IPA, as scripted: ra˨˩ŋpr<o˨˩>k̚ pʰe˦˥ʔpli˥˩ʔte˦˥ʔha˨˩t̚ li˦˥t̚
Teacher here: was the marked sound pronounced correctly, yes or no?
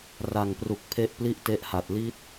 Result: no